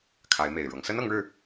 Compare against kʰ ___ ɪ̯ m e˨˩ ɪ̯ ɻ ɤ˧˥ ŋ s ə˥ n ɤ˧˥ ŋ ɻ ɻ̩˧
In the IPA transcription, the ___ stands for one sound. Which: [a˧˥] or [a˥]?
a˧˥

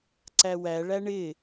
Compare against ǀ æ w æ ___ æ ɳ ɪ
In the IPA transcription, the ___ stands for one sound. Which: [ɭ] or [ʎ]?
ɭ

